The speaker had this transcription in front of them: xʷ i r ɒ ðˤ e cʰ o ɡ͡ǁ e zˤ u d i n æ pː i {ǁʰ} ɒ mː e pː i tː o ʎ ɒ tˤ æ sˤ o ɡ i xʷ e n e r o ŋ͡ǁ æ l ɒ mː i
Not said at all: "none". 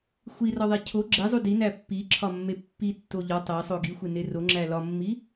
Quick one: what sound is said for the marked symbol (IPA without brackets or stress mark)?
ǁʰ